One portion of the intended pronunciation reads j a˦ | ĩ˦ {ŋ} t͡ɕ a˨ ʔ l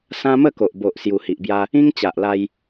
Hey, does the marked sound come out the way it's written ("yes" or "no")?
yes